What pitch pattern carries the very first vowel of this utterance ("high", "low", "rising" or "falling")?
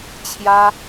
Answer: high